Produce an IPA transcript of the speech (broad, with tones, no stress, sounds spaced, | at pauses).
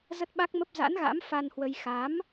z ə˦˥ t̚ ɓ a˦˥ k̚ m ə˦˥ p̚ z a̰˧˥ n ɣ a̰˧˥ m f a˧ n h w ə˧ j x a˨˦ m